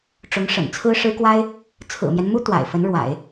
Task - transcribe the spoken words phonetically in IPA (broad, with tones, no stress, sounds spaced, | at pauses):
ʈ͡ʂ ʊ˧˥ ŋ ʂ ə̰˨˩ n t͡sʰ ɹ̩˥ ʂ ɻ̩˥ k w a˥ ɪ̯ | t͡sʰ ɹ̩˨˩ m j ɛ˦ n m u˥ t̪ w a̰˨˩ ɪ̯ f ə˧˥ n ɻ w a̰˨˩˦ ɪ̯